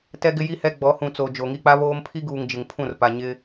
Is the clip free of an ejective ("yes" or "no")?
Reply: yes